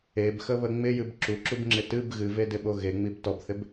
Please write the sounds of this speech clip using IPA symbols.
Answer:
e b x ə β ə ŋ͡m ɪ j ɨ b ǁ u ǁ u b ŋ͡ǁ ɪ t ɨ b ɣ ɨ v e d ɪ ɓ o ɣ e ŋ͡m i b t ɔ b θ ɪ b

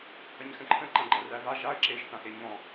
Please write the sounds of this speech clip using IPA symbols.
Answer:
h ɐ ɲ x ə̃ ǃʰ ə̃ ǃ ã ɡ͡ǃ ɐ r æ v a ʒ a ə̯ ǁ e ʒ θ ã x e ɲ ɔ̃

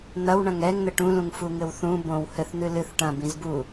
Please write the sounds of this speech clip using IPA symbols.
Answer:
n̪ ɐ w ɳ ɐ̃ ŋ ɛ ŋ n̪ ɘ ʈ ũ l ũ ŋ f u ŋ ɘ w θ ũ b õ w h ɘ θ n̪ ɨ l ɨ θ ʈ ɐ̃ b ĩ z b u

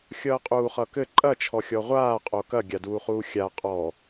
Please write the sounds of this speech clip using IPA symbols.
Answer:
xʲ ʌː qʼ uː χ ʌː k ɘ ǃʼ ɐ t͡ʃʰ ɔ xʲ ɔ ʁʷ aː qʼ o k ɐ ɡʲ a d uː χ uː xʲ a qʼ ɔ

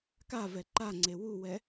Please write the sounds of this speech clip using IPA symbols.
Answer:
k a v ɛ ǃ a ŋ͡ǀ e w u w ɛ

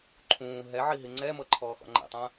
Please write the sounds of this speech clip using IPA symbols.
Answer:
ǃʰ ũː ɦ ɛ ʕ i ɦ i ŋ͡ǀ ɛ m ɤ ǃʰ ɔː x ɔ̰ ŋ͡ǃ ɛ̰ tˤ ã

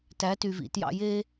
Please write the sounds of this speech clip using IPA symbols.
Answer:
t æ˨˦ t y˨ v ḭ˨ t j ɑ̰˦ j e˦

